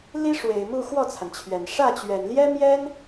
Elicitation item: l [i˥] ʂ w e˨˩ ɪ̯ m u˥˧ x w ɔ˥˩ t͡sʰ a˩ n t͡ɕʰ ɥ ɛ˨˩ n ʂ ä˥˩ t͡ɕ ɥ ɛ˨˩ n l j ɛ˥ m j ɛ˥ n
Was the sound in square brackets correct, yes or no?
yes